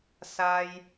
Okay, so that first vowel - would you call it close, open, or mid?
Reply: open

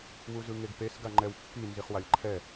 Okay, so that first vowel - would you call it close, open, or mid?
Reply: close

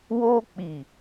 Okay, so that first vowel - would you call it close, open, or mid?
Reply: mid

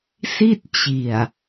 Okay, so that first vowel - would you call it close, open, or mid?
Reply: close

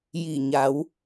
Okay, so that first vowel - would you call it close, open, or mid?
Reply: close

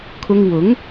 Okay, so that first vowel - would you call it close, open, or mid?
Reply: close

